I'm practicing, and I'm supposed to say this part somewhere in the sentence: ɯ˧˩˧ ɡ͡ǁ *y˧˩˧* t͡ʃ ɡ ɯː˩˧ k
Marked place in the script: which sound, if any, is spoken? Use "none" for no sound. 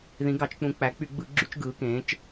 y˧˩˧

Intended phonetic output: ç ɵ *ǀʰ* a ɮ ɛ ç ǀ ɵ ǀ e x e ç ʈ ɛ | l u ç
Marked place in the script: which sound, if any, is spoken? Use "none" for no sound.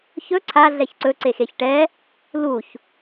ǀʰ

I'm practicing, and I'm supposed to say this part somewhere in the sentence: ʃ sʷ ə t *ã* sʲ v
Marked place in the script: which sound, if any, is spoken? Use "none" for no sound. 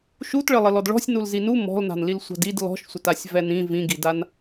a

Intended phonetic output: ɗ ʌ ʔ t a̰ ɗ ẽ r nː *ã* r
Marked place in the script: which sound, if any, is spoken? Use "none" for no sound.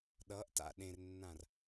ã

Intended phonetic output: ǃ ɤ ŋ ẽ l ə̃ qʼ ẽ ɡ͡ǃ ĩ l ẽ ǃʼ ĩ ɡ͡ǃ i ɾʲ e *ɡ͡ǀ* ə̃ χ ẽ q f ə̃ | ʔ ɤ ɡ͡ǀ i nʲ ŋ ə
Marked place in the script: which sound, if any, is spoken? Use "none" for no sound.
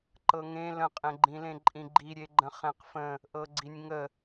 ɡ͡ǃ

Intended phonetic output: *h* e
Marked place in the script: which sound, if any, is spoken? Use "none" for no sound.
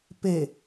p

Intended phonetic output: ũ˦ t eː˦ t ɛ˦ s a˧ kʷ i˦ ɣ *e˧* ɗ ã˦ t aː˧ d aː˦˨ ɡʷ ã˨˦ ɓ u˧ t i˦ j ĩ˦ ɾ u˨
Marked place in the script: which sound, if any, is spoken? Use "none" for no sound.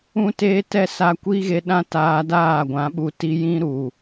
e˧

